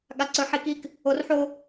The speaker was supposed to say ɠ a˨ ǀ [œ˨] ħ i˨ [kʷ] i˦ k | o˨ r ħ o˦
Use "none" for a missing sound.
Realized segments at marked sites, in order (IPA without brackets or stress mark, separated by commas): ɵ˨, k